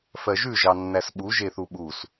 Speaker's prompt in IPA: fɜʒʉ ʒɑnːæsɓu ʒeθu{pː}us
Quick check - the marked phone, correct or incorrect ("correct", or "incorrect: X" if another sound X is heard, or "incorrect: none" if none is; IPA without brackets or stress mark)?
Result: incorrect: ɓ